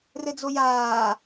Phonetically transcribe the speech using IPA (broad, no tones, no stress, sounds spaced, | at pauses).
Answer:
r ɘ d͡z o j aː